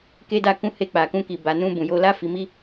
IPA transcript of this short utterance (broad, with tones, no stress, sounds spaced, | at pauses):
k e˧ d a˧ k ũ˧ h e˧ k͡p a˨ k ũ˧ k i˨ b a˨ n ũ˧ b ũ˨ j o˧ l a˦ f i˧ m i˦